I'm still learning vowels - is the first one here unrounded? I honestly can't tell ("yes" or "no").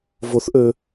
no